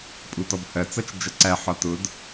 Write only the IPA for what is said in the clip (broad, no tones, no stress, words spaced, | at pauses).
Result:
pʼutɔbhɜt͡sʌt͡ʃ d͡ʒʌǀæħɒ tʊd